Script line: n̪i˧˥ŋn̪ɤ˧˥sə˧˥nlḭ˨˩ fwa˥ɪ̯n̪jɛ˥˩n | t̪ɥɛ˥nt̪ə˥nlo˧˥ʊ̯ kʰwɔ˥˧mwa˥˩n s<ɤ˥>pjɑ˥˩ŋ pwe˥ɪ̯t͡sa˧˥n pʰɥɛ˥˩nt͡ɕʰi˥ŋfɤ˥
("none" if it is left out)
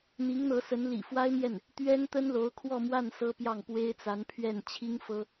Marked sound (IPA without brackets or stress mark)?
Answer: ɤ˥